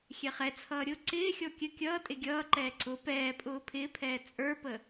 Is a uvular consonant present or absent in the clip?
present